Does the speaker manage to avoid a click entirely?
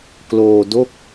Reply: yes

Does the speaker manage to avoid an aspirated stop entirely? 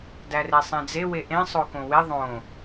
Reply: yes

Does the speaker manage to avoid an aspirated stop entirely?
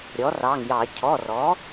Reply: no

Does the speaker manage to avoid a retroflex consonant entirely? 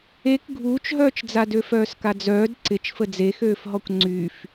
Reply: yes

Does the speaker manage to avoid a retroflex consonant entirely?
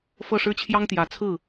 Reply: no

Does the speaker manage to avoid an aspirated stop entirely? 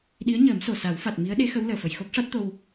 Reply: yes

